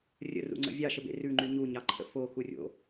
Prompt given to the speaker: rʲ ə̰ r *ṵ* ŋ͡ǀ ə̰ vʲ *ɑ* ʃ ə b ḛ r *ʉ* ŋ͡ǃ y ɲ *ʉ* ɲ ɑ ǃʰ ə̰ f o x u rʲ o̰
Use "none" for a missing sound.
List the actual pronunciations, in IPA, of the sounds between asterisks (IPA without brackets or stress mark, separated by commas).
ṵ, ɑ, ʉ, u